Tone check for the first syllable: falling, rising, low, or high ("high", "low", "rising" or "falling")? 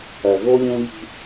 low